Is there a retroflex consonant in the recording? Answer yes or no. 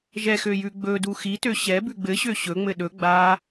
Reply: no